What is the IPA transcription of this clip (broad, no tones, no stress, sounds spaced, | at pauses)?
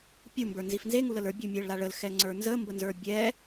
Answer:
pʲ u m b ə˞ n z i f n z e ŋ u l ə l ə˞ bʲ u mʲ ɛ ɭ l a ɭ ə l x ɛ ŋ͡ǀ ə˞ n z ə m b ə n z ə˞ bʲ ɛ